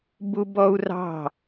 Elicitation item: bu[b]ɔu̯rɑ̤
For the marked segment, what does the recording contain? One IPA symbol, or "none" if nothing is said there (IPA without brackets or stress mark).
b